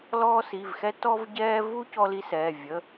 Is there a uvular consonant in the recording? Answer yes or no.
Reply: no